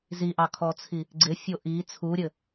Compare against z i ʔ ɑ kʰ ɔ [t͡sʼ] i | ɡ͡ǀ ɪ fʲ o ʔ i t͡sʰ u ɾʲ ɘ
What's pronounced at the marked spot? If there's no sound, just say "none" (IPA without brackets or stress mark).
t͡sʰ